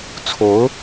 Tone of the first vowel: rising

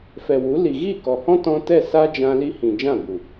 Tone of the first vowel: low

